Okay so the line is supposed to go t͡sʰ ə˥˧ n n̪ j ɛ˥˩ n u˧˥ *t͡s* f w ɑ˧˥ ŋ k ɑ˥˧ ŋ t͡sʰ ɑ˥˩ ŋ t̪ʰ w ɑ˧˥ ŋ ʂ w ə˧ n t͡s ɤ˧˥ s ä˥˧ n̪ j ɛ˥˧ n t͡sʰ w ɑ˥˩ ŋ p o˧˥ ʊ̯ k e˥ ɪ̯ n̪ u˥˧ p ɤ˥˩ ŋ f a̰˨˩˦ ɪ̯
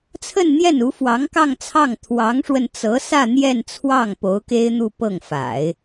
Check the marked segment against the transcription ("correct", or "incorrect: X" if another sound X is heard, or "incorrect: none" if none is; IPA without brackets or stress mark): incorrect: none